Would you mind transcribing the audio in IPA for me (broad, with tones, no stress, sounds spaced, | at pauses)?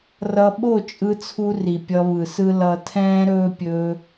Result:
r ʌ˧ ɓ o˦˨ t͡ʃʼ ɯ˧ t͡sʰ u˧ r i˨ pʲ ʌ˧ β ɯ˨ s ɯ˦ l ʌ˧ tʰ ɛ̃ː˦ ɾ ɵː˦ pʲ ɵː˧